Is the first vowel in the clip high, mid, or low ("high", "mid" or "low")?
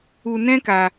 high